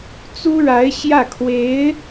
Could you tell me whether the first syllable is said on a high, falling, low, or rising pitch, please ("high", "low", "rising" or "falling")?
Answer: high